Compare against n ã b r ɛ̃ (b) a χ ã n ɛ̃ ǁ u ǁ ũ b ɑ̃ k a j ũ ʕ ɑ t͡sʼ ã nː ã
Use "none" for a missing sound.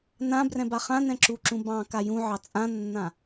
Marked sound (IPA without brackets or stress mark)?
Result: b